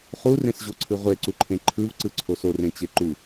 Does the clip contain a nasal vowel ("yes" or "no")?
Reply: yes